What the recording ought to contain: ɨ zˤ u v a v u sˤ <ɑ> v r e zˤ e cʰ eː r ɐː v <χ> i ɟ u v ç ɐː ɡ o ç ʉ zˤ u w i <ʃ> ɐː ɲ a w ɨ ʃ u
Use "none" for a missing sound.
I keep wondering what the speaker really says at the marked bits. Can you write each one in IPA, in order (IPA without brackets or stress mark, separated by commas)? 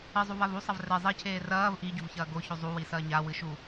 ɐ, ʔ, s